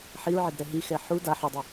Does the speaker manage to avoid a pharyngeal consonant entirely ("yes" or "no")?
no